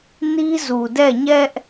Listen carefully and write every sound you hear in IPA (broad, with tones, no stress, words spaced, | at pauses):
ni˦zu˨dɛ˦˨ɲɛ˦ʔ